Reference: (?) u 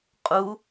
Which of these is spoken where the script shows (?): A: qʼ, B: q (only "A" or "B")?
A